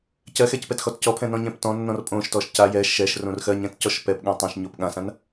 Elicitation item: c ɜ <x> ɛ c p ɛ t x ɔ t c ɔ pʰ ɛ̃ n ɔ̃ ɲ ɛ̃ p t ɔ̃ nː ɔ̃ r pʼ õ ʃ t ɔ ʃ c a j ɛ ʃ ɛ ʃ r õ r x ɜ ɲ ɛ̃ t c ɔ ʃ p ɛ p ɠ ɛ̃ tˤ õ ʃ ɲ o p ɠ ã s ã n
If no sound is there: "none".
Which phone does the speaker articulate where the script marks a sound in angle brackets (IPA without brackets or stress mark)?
x